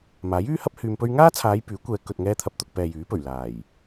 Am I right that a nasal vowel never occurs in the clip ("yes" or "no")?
yes